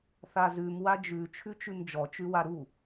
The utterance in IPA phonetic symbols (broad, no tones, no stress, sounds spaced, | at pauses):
θ a z ʉ m w a d͡ʒ ʉ t͡ʃʰ ʉ t͡ʃ ʉ m d͡ʒ ɔ t͡ʃ ʉ w a ɾ u